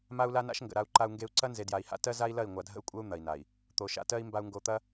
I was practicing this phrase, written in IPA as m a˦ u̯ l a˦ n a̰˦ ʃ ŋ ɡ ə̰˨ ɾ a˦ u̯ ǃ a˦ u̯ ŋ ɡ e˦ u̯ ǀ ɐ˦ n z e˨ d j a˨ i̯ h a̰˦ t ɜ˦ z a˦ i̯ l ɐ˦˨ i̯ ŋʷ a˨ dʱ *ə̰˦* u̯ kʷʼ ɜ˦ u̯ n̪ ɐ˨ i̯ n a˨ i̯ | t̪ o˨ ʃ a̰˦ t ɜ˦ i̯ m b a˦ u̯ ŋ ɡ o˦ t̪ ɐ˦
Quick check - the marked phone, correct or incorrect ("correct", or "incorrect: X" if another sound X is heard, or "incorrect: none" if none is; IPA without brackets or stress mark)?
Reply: correct